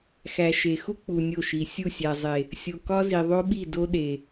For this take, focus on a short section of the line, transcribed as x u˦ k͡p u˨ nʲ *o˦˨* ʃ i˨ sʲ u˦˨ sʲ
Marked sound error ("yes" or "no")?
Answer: no